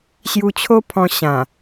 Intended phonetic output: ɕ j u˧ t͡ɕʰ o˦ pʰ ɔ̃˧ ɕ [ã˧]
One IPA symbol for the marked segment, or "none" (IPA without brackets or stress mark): ã˨˩